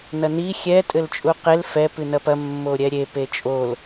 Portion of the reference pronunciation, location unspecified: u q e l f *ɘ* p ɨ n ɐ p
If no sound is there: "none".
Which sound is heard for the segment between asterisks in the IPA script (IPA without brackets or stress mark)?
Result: ɛ